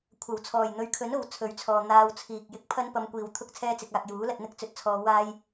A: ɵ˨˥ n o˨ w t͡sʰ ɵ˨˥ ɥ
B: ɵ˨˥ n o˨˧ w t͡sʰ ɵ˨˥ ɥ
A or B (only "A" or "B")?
A